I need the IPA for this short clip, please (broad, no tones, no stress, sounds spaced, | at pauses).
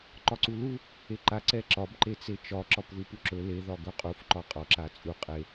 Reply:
ǃ ɒ ǀ u l u | e ǃ a ǀ ɛ ǁ ɒ b ǃ e t͡s e t͡ʃ ɒ ǁ ɒ p ð u p u ǁ ɵ l e ð ɒ ɡ ɵ qʼ u f ǃ ɒ qʼ ɒ ǁ a t͡sʼ u qʼ e